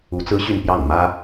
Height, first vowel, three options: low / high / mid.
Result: high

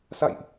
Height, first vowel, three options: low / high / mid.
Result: low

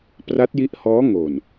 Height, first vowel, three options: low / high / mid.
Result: low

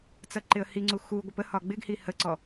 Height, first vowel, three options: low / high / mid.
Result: mid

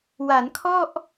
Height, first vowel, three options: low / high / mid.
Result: low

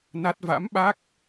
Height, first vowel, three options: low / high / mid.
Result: low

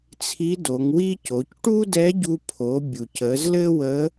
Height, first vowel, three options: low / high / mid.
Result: high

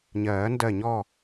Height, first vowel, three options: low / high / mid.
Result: mid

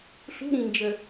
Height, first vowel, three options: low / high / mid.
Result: high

